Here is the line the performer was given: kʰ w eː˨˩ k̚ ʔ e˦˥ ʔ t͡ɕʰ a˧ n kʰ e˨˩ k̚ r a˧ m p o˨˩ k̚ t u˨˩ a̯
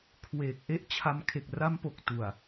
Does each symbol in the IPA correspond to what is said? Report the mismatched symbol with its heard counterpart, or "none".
n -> m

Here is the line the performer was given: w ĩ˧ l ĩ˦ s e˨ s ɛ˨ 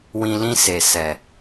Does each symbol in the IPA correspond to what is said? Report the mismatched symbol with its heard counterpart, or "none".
none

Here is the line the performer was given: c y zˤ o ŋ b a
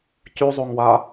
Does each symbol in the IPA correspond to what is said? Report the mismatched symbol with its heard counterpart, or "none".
b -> w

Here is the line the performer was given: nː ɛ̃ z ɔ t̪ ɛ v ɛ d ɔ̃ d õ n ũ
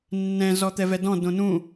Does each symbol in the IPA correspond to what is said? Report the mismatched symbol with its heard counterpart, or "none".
none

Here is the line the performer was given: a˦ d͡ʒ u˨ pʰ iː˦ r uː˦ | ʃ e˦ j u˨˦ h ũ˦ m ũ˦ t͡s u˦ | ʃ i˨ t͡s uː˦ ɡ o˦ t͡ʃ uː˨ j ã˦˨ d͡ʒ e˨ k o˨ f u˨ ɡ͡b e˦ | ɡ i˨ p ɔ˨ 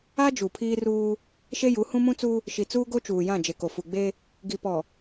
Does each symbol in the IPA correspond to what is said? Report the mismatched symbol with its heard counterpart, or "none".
none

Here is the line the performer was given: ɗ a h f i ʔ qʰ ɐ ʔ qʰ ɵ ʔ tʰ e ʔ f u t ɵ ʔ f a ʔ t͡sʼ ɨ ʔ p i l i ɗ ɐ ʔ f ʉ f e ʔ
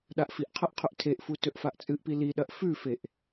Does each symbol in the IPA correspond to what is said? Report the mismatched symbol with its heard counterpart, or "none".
h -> ʔ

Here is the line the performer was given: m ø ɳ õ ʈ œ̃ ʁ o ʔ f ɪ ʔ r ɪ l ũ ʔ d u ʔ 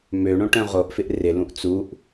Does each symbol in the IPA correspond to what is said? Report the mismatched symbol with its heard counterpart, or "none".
d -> t͡s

